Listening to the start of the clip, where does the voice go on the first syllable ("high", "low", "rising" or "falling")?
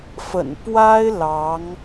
low